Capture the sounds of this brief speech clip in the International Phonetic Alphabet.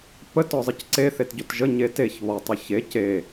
pətɔzˤɯc ǀeθetɟot ʒəɲe teçβɔtˤɯ çe ce

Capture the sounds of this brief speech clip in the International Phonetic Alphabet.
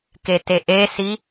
keteʔesi

